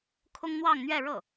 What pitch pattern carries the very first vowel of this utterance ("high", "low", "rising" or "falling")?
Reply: high